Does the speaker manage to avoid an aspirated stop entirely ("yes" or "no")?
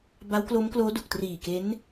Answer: yes